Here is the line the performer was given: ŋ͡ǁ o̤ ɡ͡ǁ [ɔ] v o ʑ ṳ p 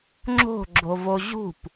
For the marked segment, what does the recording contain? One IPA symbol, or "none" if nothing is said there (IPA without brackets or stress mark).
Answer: o